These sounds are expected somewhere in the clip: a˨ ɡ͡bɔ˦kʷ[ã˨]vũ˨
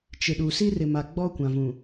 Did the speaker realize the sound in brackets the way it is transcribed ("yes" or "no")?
yes